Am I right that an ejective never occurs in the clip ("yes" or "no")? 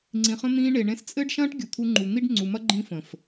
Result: no